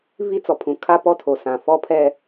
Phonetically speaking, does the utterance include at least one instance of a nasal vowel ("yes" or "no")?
yes